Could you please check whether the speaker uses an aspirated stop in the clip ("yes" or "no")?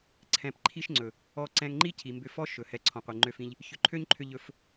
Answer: yes